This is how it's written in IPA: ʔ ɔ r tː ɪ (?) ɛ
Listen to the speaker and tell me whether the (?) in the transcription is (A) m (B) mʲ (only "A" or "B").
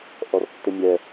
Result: B